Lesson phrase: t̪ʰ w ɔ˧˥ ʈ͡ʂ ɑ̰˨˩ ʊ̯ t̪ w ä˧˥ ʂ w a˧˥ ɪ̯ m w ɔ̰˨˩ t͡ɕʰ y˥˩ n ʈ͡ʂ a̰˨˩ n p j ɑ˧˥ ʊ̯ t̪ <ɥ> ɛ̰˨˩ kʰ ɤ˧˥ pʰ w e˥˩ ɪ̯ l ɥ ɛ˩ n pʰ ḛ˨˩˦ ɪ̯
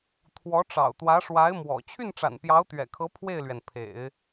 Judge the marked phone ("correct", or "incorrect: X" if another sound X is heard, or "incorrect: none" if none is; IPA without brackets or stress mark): correct